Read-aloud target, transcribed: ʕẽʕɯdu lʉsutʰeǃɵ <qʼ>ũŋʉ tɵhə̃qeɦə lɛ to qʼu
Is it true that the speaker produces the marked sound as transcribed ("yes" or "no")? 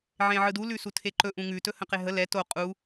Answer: no